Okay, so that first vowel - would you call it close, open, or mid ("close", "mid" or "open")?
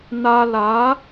open